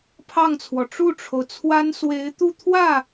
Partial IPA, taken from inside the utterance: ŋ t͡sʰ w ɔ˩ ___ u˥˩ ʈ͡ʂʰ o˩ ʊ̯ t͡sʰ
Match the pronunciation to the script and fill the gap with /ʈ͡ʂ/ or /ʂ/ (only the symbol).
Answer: ʈ͡ʂ